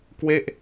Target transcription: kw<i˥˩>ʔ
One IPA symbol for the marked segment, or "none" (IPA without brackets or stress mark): e˥˩